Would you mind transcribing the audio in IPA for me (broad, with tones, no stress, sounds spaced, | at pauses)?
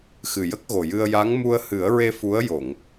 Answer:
x ɨ˨˩ j ə˦˥ k̚ ɣ o˨˩ j ɨ˧ ə̯ j a˧˥ ŋ m u˧ ə̯ h ɨ˨˩˦ ə̯ ɹ e˧ f u˧˥ ə̯ j o˨˩˨ ŋ